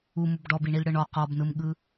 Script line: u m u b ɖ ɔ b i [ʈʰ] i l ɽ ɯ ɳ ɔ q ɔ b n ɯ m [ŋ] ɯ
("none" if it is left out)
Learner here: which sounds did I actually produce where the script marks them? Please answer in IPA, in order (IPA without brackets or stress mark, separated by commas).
ɳ, ɠ